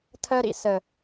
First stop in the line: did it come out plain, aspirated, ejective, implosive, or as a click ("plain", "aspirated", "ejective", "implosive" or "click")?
aspirated